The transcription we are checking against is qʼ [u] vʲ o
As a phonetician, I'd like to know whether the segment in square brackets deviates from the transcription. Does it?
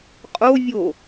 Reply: yes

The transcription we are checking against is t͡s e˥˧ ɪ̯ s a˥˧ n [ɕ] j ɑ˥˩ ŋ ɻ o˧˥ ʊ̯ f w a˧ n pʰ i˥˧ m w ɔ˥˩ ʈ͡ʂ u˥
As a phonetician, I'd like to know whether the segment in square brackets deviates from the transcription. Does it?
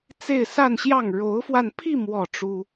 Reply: no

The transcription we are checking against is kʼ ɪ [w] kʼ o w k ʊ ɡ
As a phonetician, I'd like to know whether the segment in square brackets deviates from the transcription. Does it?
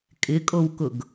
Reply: yes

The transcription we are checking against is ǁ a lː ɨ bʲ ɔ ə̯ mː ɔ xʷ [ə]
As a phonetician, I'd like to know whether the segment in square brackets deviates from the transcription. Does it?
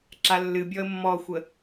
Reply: no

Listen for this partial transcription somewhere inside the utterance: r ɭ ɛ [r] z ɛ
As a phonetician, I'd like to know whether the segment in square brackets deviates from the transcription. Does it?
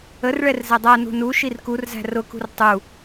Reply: no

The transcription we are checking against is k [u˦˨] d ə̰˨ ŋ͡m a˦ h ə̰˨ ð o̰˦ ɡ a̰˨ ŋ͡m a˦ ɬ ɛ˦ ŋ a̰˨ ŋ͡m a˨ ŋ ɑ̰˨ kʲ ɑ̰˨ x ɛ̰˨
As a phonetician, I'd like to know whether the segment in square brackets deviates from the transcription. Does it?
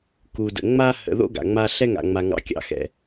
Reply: yes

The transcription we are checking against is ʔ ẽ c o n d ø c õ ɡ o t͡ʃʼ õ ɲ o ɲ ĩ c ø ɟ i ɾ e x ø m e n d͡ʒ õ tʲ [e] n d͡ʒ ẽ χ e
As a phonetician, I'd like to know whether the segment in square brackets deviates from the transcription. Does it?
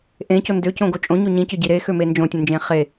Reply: yes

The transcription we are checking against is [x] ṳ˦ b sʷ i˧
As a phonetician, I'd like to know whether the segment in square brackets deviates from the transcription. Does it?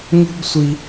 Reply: yes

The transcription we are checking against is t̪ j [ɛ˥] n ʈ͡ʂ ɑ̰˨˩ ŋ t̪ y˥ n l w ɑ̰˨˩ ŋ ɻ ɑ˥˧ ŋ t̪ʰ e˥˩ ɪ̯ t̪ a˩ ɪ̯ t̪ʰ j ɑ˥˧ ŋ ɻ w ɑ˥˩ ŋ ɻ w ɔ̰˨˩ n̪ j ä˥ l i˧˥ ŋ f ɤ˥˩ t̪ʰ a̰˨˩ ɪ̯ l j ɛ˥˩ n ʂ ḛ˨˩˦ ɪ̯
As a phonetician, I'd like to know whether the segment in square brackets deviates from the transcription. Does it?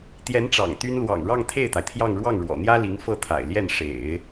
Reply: yes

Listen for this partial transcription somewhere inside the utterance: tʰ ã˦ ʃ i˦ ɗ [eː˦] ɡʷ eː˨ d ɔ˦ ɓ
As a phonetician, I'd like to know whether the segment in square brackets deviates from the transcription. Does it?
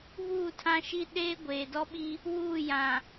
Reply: no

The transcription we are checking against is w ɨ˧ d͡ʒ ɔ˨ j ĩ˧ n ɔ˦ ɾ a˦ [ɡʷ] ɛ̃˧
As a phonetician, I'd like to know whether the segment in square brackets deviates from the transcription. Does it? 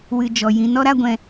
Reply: no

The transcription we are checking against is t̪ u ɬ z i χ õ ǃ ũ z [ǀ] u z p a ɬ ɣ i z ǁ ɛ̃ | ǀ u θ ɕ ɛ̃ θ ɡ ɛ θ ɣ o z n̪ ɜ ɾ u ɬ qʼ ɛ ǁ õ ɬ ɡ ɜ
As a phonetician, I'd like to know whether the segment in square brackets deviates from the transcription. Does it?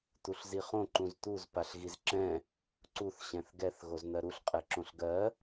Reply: yes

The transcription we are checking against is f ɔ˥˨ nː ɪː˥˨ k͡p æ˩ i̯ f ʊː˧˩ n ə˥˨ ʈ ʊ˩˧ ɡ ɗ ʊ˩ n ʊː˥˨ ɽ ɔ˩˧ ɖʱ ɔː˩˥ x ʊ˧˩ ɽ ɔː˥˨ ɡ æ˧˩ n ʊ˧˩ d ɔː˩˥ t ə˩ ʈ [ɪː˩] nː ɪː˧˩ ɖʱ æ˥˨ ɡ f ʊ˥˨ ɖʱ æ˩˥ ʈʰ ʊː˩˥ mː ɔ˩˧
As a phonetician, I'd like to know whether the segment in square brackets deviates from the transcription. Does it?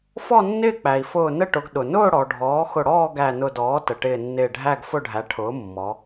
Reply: yes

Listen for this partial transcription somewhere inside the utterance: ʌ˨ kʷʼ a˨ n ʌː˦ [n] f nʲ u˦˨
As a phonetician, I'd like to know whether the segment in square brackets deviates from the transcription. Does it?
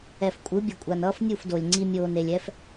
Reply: yes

